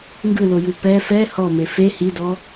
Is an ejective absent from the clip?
yes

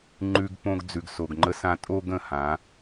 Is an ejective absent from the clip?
no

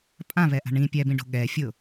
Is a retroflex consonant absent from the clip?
no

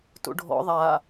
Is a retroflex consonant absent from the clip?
no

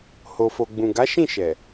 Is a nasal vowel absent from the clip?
no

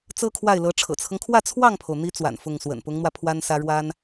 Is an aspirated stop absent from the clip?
no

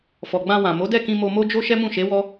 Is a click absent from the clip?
yes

